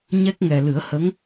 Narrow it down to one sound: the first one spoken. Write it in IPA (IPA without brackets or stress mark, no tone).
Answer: ɲ